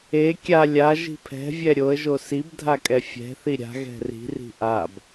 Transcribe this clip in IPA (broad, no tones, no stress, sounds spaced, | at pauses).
e kʲ a lʲ a ʒ i̤ pʰ ɛ̤ vʲ ɛ ɾʲ o ə̯ ʒ o s i b dʱ a kʼ ɛ fʲ ɛ̤ θ i ɾʲ a̤ ɣ ɛ̤ r i̤ r i̤ ʔ a b